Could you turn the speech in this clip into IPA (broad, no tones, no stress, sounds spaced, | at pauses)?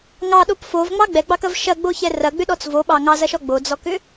ŋ ɑ ɗ o p f o v ŋ͡m ɑ ɡ͡b ɛ ɡ͡b ɑ k ɐ v ʃ ɐ ɡ͡b o ç ɛ r ɐ ɡ͡b ʏ ɗ ɔ t͡s v o ɓ ɑ ŋ ɑ z ɐ ʃ ɔ ɡ͡b o d͡z ɔ k ʏ